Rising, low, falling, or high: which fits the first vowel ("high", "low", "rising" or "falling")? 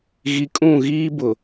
low